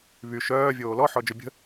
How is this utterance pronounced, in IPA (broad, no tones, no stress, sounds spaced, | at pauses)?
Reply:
β y ʃ œː vʲ oː l ɔ ħ ɔ d͡ʒ œ bʲ ə̤